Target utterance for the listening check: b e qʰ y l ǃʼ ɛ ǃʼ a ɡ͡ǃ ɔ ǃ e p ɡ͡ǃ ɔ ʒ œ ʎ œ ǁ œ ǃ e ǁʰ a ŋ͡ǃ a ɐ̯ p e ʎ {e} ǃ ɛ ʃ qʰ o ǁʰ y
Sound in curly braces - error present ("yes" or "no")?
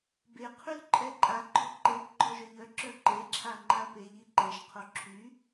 yes